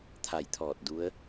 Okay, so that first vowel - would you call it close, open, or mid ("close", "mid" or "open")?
open